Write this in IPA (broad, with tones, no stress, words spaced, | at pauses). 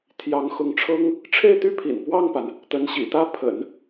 t̪ʰjɑ˧˥ŋxʊ˧˥ŋʈ͡ʂʰɤ˥ŋ | ʈ͡ʂʰe˥˩ɪ̯t̪y˥pʰḭ˨˩n pwɑ˥˩ŋpa˩n | t̪ə˧˥nɕḭ˨˩t̪ä˥ pʰə̰˨˩˦n